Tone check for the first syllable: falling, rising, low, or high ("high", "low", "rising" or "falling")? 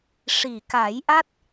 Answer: low